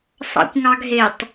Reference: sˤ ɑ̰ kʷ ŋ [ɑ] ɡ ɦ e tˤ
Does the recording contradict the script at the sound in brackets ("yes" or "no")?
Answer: no